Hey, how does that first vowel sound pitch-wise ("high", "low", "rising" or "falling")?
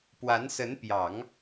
rising